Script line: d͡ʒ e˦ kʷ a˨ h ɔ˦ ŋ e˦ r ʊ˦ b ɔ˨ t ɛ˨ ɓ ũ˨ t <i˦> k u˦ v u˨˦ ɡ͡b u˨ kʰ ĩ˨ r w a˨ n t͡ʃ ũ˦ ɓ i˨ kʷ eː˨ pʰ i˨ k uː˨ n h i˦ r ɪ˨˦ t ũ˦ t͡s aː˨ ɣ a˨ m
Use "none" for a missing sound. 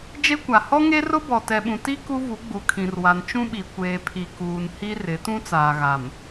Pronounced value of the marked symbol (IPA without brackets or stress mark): i˦